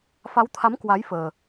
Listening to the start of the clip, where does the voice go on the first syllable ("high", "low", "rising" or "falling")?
rising